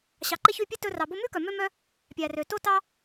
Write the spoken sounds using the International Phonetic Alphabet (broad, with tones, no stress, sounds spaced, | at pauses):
ɕ ɑ˨ ǃ e˦ ç y˦˨ pʲ e˦ t ɵ˧ r ɑ˨ b o˧ m ʉ˦ k œ˨ m ø˦ m œ˦ | pʲ æ˨ r ø˨ t o˦ t ɑ˦